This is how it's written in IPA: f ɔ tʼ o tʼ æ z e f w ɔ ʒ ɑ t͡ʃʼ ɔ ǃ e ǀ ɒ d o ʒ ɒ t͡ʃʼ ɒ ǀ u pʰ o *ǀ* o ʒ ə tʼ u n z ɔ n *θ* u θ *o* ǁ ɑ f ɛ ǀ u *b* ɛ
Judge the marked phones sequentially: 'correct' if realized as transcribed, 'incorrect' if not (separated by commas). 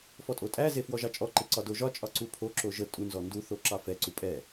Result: incorrect, incorrect, correct, incorrect